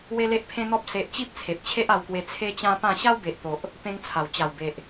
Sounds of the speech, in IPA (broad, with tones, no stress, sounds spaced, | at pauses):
w e˦ l e˦ ʔ pʰ ẽ˦ n̪ ɔ˦ p̚ s e˦ ʔ t͡ɕ i˦ p̚ t͡sʰ e˨ p̚ t͡ɕʰ e˦ ʔ a˧ w k w e˧ t͡sʰ e˦ t͡ɕ ã˦ p ã˥˧ ɕ a˦ w b e˨ ʔ t̪ o˨ ʔ | p ẽ˦ ŋ t͡sʰ a˨˩ w t͡ɕ a˨˩ w b e˨ ʔ